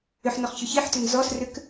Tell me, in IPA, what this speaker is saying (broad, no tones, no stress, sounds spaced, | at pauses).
ʏ ħ n ɔ χ ç ʏ ç i ħ t ʏ n z ɔ s r ʏ k